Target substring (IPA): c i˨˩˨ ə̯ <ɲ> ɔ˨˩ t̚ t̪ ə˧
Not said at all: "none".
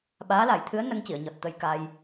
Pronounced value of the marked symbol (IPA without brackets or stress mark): ɲ